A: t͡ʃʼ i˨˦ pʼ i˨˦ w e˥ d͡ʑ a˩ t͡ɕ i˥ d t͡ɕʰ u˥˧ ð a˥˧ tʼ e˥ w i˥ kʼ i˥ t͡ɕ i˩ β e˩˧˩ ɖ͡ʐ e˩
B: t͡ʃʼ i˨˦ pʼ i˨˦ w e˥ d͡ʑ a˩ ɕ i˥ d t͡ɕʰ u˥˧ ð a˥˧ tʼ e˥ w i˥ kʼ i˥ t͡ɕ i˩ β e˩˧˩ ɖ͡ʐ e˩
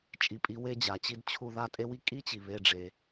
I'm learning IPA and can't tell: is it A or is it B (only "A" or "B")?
A